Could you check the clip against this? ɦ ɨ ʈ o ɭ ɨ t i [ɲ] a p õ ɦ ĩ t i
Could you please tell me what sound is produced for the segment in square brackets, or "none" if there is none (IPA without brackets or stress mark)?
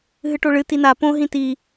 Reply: n